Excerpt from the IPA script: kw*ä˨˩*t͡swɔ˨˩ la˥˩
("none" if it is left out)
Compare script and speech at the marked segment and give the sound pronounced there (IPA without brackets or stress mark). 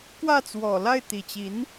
ä˥˩